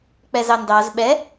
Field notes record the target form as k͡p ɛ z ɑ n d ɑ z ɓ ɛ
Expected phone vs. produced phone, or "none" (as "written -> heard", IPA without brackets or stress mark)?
none